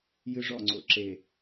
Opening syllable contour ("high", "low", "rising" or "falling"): high